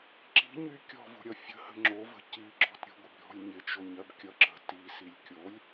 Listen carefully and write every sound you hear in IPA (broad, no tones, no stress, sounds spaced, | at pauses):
ǁ i̤ ɲ y kʲ ɔ̤ v o̤ ɾʲ ʌ fʲ ə̤ h ə̤ ŋ͡ǁ o v ə̤ c i ɡ͡ǁ ɔ̤ t ɾʲ ə̤ ɡʷ ɪ b ɾʲ ɔ̤ lʲ ɲ ɪ t͡ʃ o ɲ ɜ b kʲ ʌ ǁ ə̤ t i s i lʲ kʲ o lʲ